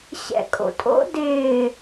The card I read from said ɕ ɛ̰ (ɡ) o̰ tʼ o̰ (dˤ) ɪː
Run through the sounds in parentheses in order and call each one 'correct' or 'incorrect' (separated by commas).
incorrect, incorrect